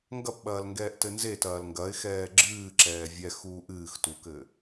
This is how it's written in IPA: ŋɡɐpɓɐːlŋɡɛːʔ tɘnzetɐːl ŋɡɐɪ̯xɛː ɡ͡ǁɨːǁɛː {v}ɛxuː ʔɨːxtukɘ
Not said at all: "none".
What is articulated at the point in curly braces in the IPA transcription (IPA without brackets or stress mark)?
vʲ